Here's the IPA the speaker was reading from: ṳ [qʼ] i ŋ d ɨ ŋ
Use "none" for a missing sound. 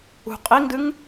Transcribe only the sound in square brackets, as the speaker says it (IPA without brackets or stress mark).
qʼ